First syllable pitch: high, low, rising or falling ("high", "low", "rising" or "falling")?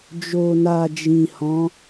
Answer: low